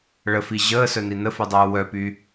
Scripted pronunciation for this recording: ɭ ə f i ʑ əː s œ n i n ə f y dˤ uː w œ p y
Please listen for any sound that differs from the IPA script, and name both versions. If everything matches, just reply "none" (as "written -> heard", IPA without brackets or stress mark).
none